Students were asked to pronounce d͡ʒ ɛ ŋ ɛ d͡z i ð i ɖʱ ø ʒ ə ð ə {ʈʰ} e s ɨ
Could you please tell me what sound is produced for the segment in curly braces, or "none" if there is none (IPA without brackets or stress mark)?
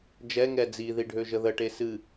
ʈ